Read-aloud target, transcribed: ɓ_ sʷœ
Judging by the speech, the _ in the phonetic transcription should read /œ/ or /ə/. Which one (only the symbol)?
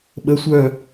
ə